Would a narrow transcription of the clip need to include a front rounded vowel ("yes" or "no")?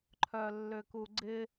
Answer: yes